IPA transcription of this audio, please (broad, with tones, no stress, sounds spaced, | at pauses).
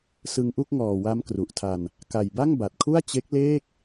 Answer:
s ɯ˧ ŋ ʔ u˥˩ k̚ ŋ ɔː˨˩ w a˦˥ m k r u˨˩ ʔ tʰ a˧ n | k a˨˩ j b a˥˩ ŋ b a˨˩ t̚ kʰ u˥˩ a̯ t͡ɕ e˦˥ k̚ l eː˥˩ k̚